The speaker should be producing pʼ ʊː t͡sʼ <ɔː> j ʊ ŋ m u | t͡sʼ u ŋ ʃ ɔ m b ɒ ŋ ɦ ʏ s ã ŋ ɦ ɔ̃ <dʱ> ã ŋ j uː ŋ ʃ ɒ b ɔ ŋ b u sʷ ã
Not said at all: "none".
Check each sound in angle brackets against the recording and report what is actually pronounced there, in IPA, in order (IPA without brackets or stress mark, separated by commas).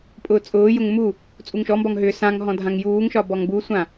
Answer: ʊː, dʱ